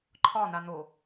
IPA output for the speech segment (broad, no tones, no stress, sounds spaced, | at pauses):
ǃʰ ɒ n̪ a n̪ o